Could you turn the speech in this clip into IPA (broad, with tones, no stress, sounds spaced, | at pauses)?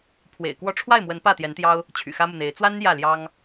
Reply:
pʰ w ḛ˨˩ ɪ̯ k w ɔ˥˧ ʈ͡ʂʰ w a˥˩ ɪ̯ m w ə˧˥ n p ä˥˩ t̪ j ɛ˧˥ n t̪ j ɑ˥ ʊ̯ | t͡ɕʰ y̰˨˩ x ä˥ m u˨ n̪ e˧˥ ɪ̯ t͡s w a˥ n j ä˥˩ l j ɑ˥ ŋ